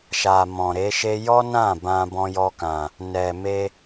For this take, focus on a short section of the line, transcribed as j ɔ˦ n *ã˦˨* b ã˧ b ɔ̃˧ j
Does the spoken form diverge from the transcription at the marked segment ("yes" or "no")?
no